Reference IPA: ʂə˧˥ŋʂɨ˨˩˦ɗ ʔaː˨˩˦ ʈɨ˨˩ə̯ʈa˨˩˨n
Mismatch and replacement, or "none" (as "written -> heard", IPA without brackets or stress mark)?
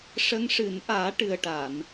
ɗ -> n